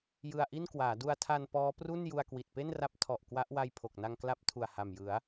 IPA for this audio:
j ɯ˧ a̯ ʔ i˥˩ n k w aː˩˦ d u˧ a̯ tʰ a˧ n p ɔː˦˥ p r u˥˩ n j u˧ a̯ k w i˨˩ t̚ p e˥˩ n r a˦˥ p̚ tʰ ɔ˨˩ ʔ k w a˦˥ ʔ w a˧ j pʰ o˨˩ k̚ n a˧ ŋ k l a˦˥ p̚ tʰ u˨˩ a̯ h a˨˩ m j ɯ˩˦ a̯

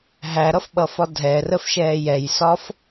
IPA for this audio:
ɦ æ ɾ ʌ f ɓ ʌ f ɒ dʱ ɛ r ə f ʃ ɛː j ɛ j s ɒ f

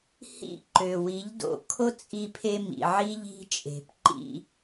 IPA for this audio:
h ḭ˦˨ ǃ ø˨ w i˨˦ ʎ d o̰˧ kʰ o˦ t͡sʼ i˧ pʰ e˧ m ḭ˨ ʕ i˦ ʎ i̤˦ t͡ʃʼ e̤˨ p ǃ ḭ˧

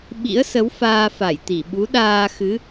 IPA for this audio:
ɓ ḭ˧˥ ə̯ s ə˨˦ w f aː˧ f a˧˩ j t̪ i˧˩ ɓ u˨˦ ɗ aː˧ x ɨ˨˦

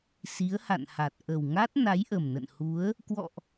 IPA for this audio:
s i˨˦ ə̯ h a̰˧˨ n h a˨˩ t̚ ʔ ə˨˩ w ŋ a˦˥ t̚ n a˨˦ j ʔ ə˨˩ m n ə̰˧˨ n h u˨˦ ə̯ | k w ɔ̰˧˨ ʔ

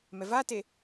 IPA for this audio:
m ɛ v a t e

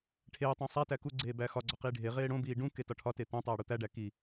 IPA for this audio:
ʈʰ eː tˤ õ sˤ æ t æ k u ɡ͡ǀ eː b æː x ɒ ɡ͡ǀ ɒ q iː ɖʱ e ʁ eː ɽ õ b iː ɖ ũ k e t ɒ ʈʰ ɒ t e t̪ õ tˤ eː ɽ u t̪ æ ɖ æ k i

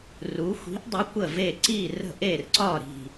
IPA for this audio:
r u˧˥ xʷ i̤˧˥ ʔ dˤ ʏ˧˥ kʷ ə˦˨ v e˦˨ ǀ i˦˨ r ə̤˦˨ ʔ e˦˨ r ǀ ɒ˦˨ ɾ i̤˦˨

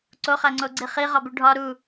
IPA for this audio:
ǀ o χ æ ŋ͡ǀ o ɡ͡ǀ i χ i ʁ ɒ b u ɖʱ ɒ ɾ u

